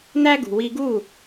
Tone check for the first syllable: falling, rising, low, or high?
high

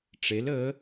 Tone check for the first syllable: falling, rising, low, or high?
rising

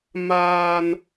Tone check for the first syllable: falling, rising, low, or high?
high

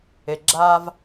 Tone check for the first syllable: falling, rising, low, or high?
low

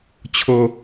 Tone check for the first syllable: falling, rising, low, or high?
high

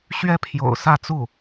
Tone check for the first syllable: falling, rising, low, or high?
high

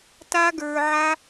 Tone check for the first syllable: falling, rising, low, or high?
high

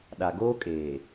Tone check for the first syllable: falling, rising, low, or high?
low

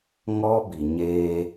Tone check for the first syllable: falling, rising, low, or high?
high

